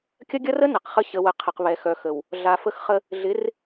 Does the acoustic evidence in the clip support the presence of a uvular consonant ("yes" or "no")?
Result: yes